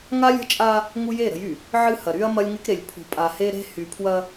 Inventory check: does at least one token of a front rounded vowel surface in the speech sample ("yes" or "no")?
yes